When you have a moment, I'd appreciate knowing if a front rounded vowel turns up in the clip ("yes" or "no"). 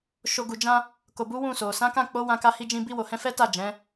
no